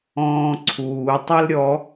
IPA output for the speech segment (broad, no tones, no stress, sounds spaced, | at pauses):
ɔ̃ː ǀʰ uː tˤ ɛ l ɾʲ ɔ